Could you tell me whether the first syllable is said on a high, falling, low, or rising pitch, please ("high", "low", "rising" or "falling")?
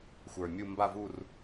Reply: low